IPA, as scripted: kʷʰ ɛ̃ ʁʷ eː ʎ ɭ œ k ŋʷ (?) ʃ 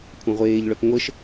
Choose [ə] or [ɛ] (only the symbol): ə